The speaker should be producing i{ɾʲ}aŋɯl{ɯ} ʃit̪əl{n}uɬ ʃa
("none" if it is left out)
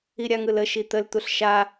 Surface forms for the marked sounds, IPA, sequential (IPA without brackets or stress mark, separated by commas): ɾʲ, ə, t̪